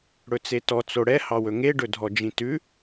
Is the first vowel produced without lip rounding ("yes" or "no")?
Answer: no